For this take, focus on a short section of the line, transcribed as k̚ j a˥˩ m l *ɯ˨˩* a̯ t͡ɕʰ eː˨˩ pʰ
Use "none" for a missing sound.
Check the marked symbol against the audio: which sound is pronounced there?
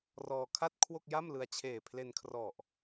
ɯ˧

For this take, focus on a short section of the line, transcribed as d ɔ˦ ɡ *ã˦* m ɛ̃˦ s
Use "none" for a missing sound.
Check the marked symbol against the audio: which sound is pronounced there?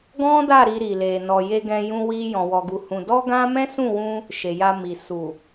ã˦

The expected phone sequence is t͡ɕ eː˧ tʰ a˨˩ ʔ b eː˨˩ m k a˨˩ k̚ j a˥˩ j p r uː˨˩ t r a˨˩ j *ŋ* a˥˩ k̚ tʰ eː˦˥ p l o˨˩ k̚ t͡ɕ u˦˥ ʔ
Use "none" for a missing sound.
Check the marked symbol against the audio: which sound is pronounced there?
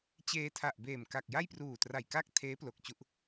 k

